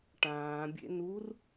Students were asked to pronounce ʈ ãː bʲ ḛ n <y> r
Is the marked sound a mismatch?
yes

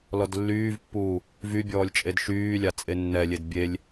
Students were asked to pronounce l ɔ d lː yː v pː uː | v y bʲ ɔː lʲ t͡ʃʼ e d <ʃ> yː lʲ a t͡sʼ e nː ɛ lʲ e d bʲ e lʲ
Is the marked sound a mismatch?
no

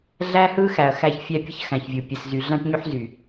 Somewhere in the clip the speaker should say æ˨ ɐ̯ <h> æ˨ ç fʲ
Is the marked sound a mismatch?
yes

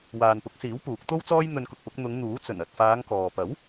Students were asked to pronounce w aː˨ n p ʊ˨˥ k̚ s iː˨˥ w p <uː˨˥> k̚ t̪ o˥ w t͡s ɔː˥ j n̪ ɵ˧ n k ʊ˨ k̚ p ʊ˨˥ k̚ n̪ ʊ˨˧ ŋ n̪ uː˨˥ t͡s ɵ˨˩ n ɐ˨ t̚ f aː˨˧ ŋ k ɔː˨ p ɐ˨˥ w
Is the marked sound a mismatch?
no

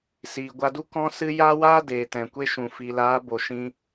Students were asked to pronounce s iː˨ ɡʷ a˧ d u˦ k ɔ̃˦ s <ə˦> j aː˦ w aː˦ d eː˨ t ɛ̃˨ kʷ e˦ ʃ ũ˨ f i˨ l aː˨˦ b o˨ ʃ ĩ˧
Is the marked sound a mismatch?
yes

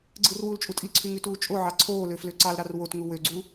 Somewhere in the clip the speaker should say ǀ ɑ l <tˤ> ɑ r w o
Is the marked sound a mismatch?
yes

